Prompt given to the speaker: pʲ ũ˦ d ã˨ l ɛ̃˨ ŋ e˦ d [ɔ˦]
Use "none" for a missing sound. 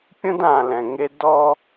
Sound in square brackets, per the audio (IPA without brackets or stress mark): ɔ˦